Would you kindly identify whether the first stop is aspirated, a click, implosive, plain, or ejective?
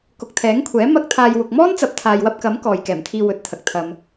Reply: plain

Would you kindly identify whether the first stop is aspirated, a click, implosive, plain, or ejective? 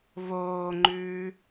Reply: click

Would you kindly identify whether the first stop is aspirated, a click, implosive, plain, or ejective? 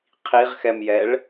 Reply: aspirated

